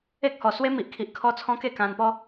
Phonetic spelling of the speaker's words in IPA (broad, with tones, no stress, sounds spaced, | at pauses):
e˦ k̚ h ɔ˨˩ s w e˦ m i˨ ʔ kʰ i˨ ʔ kʰ ɔ˦ t͡sʰ ɔ̃˦ k e˥˧ k ã˧ n p ɔ˦